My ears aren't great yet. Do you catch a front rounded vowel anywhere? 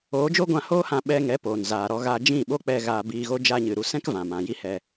no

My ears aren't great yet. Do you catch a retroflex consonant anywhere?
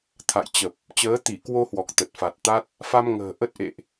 no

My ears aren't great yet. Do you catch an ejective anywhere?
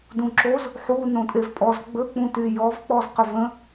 yes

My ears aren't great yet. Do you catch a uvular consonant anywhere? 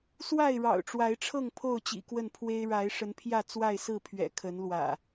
no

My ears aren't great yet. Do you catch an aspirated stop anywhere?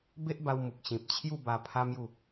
yes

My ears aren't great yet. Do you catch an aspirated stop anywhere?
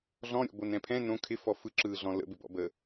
yes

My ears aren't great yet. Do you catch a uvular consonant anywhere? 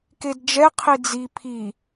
yes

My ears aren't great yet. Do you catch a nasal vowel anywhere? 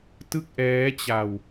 no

